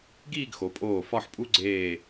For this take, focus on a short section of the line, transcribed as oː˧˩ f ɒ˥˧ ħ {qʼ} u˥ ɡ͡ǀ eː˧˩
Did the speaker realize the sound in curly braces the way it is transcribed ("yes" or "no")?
no